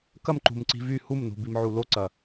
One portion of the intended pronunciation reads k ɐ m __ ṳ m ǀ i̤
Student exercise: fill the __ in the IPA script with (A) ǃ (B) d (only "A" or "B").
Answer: A